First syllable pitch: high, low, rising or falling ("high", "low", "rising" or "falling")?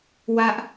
low